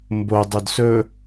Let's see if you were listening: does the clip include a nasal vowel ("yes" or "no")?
no